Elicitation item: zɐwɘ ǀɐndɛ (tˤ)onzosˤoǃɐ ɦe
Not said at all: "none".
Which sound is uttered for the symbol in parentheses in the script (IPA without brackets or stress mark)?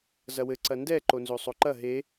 ǃ